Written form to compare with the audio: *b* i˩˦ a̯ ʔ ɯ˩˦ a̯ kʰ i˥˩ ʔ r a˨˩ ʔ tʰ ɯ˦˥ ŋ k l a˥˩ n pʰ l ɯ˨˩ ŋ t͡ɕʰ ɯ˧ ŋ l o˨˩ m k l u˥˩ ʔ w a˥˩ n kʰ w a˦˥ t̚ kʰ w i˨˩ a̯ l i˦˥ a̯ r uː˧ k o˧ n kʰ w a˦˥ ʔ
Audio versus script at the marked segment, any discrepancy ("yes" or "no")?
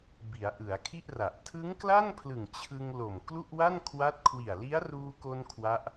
no